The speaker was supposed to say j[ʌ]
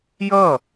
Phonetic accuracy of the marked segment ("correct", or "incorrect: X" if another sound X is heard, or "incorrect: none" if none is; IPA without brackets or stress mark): correct